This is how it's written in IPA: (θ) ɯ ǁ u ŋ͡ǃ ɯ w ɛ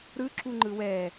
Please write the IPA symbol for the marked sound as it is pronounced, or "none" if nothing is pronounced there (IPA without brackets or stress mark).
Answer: ɾ